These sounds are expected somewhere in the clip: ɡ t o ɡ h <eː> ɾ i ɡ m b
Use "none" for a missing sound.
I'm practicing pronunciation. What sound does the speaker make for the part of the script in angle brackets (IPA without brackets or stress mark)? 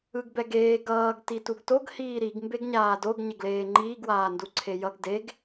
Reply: iː